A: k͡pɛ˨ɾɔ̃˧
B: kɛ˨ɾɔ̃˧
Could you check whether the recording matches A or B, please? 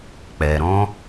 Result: A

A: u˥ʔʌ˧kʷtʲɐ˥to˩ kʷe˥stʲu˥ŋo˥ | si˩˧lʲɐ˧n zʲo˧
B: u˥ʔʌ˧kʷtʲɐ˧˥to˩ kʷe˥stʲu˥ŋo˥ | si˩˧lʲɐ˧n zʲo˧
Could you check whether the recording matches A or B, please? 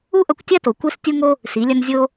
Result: A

